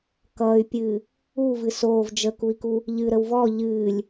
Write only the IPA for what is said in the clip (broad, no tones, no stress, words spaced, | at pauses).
kʌːy̯pʲɨː | uvɨ soːv d͡ʒəkui̯ku | ʎɨɾəw vɔ ʎɨːlʲ